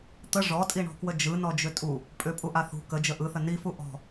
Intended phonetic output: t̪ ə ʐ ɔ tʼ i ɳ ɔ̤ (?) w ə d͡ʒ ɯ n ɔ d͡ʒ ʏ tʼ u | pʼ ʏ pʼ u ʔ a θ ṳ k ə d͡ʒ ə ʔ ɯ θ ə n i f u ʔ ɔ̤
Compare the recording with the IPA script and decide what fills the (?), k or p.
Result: k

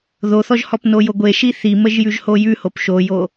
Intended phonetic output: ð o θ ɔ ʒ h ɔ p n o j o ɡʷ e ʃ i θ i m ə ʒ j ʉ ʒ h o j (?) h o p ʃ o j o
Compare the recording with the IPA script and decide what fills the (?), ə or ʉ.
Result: ʉ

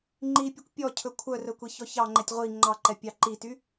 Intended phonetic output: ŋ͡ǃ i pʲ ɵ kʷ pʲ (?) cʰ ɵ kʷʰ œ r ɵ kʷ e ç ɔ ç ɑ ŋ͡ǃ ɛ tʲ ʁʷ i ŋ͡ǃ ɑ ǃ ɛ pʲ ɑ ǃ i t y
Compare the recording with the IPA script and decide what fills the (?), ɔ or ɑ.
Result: ɔ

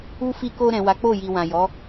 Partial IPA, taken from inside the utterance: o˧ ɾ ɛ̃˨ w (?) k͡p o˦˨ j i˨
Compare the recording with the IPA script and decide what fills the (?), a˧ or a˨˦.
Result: a˨˦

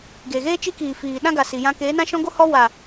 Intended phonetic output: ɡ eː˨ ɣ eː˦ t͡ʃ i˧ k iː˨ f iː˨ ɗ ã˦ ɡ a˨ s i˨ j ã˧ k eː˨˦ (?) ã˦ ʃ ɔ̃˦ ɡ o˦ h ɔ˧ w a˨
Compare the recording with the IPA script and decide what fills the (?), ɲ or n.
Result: n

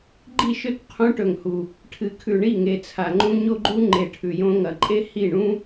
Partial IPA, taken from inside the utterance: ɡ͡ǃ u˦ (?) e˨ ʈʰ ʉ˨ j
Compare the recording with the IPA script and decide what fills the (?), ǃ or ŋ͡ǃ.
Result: ŋ͡ǃ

